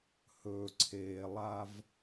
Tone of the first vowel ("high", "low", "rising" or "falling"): low